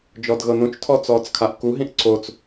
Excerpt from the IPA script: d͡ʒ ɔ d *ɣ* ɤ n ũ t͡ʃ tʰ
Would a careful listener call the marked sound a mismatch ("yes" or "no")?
no